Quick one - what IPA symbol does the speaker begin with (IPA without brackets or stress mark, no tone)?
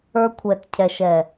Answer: ə˞